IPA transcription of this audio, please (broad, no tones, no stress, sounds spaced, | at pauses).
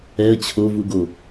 ɛ ə̯ t͡ɕʰ o v u ɡ o